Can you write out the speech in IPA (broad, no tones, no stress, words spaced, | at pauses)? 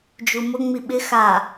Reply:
d͡ʒumʊ ŋ͡miɓɪ xa